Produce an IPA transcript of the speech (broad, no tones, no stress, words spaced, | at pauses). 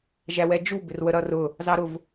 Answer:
ʒæwɛd͡ʒu bɪrwəɾʌrʊ | zɑɾʊv